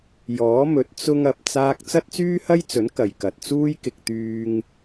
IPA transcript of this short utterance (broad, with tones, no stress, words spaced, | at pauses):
jɔː˨˥mɵ˨˥t̚ t͡sʊ˧ŋ ɐ˨p̚ t͡saː˥k̚ t͡sɐ˥t̚t͡syː˥hɐ˥jt͡sɵ˨˥n kɐ˨jkɐ˨t̚t͡suː˥j kɪ˧k̚ t̪yː˧ŋ